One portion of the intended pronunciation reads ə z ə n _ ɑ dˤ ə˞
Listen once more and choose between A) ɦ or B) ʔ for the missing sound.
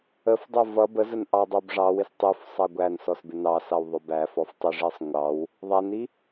B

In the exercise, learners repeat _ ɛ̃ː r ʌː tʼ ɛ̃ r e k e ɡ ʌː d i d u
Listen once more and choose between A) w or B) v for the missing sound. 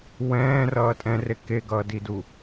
A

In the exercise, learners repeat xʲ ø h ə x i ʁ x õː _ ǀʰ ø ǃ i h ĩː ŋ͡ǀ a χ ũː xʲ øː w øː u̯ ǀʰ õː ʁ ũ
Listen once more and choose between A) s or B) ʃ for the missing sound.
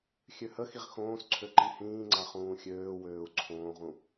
A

